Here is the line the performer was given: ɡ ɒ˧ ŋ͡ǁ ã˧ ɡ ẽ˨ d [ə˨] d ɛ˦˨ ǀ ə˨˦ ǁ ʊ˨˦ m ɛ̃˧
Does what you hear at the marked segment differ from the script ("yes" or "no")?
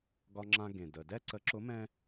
no